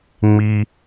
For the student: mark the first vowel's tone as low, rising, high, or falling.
low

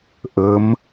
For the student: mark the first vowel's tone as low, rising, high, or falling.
rising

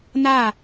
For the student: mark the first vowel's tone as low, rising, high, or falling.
falling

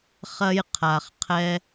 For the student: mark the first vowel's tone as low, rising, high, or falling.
high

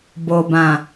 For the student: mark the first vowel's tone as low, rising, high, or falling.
low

